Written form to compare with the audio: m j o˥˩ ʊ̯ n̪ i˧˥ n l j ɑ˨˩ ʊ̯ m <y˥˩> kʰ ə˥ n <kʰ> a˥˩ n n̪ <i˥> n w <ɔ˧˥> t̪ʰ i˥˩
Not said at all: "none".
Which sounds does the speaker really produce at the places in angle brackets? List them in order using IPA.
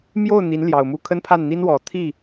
u˥˩, pʰ, i˥, ɔ˨˩

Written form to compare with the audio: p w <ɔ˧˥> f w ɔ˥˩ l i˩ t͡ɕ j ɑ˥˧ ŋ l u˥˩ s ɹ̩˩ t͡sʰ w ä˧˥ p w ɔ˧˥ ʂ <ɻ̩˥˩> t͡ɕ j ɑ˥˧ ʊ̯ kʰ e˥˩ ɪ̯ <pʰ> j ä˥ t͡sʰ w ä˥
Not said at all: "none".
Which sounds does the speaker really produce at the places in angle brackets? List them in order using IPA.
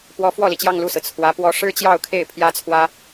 ɔ˧˥, ɻ̩˥, pʰ

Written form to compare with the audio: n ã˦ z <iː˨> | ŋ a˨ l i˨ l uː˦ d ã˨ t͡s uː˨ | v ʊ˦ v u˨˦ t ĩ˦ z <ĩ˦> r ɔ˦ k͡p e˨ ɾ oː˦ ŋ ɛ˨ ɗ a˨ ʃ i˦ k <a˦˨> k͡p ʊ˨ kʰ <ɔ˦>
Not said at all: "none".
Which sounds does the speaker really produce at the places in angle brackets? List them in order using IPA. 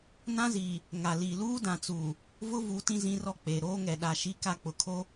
iː˨, ĩ˦, a˦˨, o˦

